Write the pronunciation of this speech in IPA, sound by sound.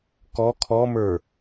kɔ kʰɔmə˞

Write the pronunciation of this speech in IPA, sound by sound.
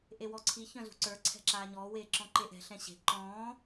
ʔewɔǀʰi çœ̃zṳǀə˞ ǀʰɛ̤ǁaːɲɔː weːǁɔ̃ǃeʔɛ̤ ɬɛ̃ɕe̤ ǃɔ̃ː

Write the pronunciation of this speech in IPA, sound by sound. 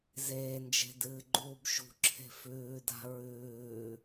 zeːnd͡ʒe̤ dɨːɡ͡ǃuːbʃṳǁʰe̤ fʉːda̤ ɹʉː

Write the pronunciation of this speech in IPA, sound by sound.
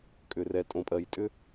kʼʏ˩rɛ˩tʼõ˩pʼɜ˩j tʼʏ˥

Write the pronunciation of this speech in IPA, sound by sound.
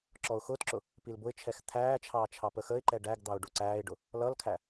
ǁɔʊ̯xʊːtǁʊ | pilbʊɪ̯t͡ʃʰɛx t̪ʰæːt͡ʃʰɑː t͡ʃʰɑpəxəɪ̯ǃɛ ɖæɡd̪ɑʊ̯ ɖuǀæːɪ̯ɖʊ | lʌlkʰæ

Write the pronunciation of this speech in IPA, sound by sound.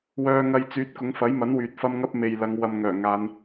wœː˧ŋɐ˧jt͡syː˨˥t̚ kʊ˨˧ŋfɐ˨˥jmɐ˨˥n wyː˨t̚fɐ˥mŋɐ˥p̚ me˨jlɐ˨˧ŋ wɐ˧mŋœː˨˩ŋaː˨˧n

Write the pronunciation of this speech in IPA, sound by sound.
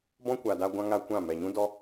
bɔ̃˦kʷa˨da˧ ɡʷã˦ŋa˦kʷã˦˨ mɛ˨ɲũ˦dɔ˦

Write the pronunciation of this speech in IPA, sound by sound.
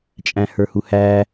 t͡ʃʼæ̃hə˞huhæ

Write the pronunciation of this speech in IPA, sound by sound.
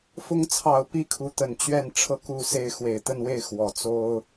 fʊ˧˥ŋt͡sʰɑ˨˩ʊ̯ pi˥kʰu˧˥ t̪ə˨˩nt͡ɕɥɛ˥˩n ʈ͡ʂʰɤ˧˥ku˨˩ se˥˩ɪ̯ xwe˨˩ɪ̯t̪ə˥˧nwe˥˩ɪ̯ xwɔ˨˩t͡so˥ʊ̯

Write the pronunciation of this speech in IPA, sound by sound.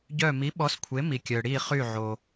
ɟœ˧˩mi˩˥ɓɔ˩˥s kʷʰe˩˥mi˩kʲœ˩ ɽi˧˩ χy˧˩ʕo˩

